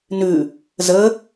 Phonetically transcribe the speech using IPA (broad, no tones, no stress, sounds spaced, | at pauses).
n ʉ | z ə